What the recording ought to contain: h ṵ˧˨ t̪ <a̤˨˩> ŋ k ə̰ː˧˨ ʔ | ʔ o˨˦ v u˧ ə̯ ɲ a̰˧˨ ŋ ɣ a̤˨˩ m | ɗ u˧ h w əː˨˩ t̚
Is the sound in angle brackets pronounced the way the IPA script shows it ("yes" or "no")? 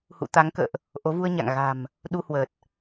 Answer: no